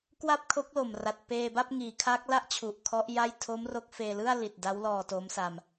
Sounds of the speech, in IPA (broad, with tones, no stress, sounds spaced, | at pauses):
k w a˥˩ p̚ kʰ o˦˥ k̚ l o˨˩ m r a˨˩ t̚ p eː˧ b a˥˩ p̚ ŋ iː˩˦ kʰ a˦˥ k̚ l a˥˩ ʔ t͡ɕʰ u˨˩ ʔ kʰ ɔ˦˥ ʔ j a˥˩ j tʰ o˦˥ m r o˦˥ k̚ f eː˧ l ɯ˥˩ a̯ l i˨˩ t̚ d a˦˥ w l ɔː˧ t o˦˥ m s a˧ m